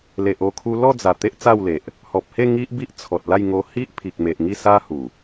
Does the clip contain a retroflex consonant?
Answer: no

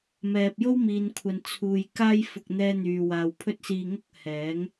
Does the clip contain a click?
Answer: no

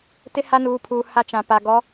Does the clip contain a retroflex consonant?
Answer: no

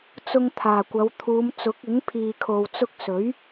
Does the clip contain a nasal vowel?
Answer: no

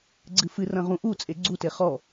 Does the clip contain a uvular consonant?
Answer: yes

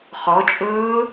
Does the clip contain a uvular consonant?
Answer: yes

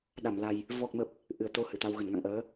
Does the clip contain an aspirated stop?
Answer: no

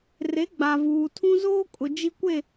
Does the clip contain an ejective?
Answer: yes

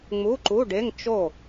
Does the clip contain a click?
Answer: yes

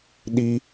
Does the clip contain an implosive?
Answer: yes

